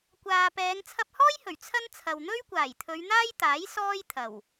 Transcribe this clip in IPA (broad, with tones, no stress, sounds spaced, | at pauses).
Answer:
kʷ aː˨ p ɛː˨˧ ŋ t͡sʰ ɐ˧ p̚ h ɔː˥ j h ɵ˨˩ ɥ t͡sʰ ɐ˥ n t͡sʰ ɐ˨ w n̪ ɵ˥ ɥ kʷ aː˨˩ j t̪ʰ ɵ˨˧ ɥ n̪ aː˥ j t̪ aː˨˥ j s ɔː˥ j t̪ʰ ɐ˨˩ w